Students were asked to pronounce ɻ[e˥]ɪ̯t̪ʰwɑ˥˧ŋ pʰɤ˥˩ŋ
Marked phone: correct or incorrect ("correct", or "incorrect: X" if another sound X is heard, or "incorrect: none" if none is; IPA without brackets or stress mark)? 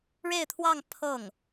incorrect: e˥˧